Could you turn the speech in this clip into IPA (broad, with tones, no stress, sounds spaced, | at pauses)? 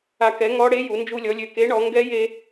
a˧ k ɛ˨˥ ŋ ɔ˦˥ ɽ e˦˥ j u˩˧ n d͡ʒ u˧ lʲ ɔ˩˧ lʲ ø˨˩ k e˨˥ ɳ ɔ˩˧ ŋ ɡ ɛ˦˥ j e˧